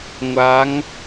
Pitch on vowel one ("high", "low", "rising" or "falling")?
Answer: rising